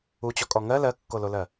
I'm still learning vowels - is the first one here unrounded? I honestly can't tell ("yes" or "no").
no